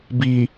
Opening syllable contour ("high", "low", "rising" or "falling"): low